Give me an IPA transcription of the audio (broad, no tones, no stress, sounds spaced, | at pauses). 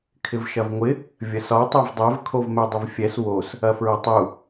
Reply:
kʰ ɪ v ʃ ɐ v ŋʷ ɪ | vʲ ɐ s ɒ tˤ o v dˤ ɛ v kʰ o v m ɛ dˤ ɪ v fʲ ɛ s w o s | ɐ f ɹ ɐ tˤ u